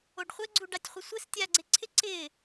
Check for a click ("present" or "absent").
present